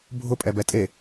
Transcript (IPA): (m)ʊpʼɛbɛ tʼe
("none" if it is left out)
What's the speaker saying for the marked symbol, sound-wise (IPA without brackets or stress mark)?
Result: bʱ